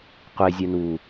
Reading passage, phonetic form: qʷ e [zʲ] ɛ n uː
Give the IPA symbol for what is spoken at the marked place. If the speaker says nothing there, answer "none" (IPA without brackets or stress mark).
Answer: zʲ